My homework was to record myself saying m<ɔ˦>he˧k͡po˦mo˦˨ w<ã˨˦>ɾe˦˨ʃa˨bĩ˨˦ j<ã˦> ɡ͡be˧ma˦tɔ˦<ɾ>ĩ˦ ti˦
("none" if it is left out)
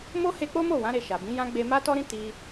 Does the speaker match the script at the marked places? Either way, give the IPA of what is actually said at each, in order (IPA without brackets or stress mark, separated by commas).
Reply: o˦, ã˨˦, ã˦, ɾ